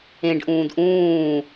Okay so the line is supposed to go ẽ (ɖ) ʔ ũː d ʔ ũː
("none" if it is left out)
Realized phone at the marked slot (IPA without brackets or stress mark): ɖ